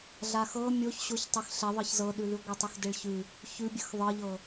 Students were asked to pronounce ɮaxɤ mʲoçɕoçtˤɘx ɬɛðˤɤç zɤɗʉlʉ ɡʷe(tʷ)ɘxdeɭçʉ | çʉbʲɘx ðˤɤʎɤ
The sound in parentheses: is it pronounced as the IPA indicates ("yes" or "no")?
no